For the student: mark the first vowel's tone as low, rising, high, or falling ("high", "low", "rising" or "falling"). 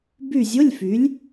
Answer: falling